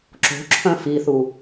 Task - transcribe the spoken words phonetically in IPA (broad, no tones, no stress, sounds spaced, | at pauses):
ǁ o̤ ǁʰ œ̃ f i θ u